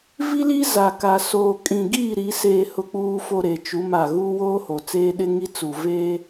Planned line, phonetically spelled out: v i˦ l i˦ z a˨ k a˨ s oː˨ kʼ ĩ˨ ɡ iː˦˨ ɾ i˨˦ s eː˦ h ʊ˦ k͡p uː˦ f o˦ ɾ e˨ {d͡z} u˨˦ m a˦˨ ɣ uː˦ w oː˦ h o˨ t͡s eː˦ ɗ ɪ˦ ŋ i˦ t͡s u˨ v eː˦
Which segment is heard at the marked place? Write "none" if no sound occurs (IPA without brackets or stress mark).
t͡ʃ